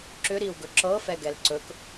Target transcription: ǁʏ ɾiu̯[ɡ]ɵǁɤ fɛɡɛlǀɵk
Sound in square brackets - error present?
no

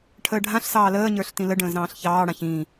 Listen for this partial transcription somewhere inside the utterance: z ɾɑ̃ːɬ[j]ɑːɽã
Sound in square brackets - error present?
yes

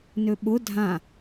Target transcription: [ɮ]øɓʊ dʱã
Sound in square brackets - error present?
yes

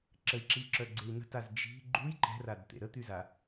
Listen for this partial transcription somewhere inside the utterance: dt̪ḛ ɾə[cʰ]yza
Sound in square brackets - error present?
yes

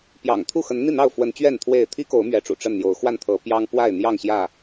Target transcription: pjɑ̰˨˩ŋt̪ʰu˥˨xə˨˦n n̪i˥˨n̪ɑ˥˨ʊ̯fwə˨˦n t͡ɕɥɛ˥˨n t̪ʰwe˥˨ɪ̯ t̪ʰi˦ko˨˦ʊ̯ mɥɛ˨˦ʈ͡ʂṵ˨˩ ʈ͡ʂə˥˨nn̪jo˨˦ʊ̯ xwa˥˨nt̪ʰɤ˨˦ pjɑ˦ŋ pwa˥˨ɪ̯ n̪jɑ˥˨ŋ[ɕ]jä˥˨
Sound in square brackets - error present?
no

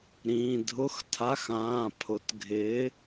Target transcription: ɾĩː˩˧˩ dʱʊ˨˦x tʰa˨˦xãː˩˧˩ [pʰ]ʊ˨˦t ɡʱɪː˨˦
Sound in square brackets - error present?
no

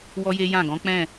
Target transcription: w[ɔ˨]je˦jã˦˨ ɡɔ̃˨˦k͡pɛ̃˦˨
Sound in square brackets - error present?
yes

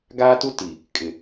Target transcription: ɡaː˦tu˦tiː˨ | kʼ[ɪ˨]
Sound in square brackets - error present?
no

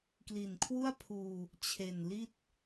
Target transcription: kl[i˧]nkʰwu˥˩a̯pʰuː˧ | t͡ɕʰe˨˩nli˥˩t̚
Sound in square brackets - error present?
yes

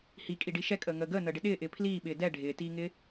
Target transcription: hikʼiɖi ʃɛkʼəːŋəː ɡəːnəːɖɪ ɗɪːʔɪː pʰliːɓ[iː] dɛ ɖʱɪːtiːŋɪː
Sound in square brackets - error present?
yes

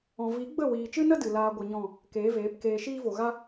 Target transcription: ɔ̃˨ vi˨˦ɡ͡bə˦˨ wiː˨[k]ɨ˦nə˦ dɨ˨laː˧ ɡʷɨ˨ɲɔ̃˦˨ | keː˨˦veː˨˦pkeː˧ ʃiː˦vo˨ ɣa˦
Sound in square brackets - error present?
yes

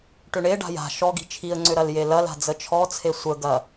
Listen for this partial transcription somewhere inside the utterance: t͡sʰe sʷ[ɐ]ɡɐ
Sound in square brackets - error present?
yes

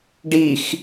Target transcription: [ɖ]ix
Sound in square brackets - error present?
no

